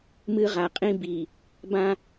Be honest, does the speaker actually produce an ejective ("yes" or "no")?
yes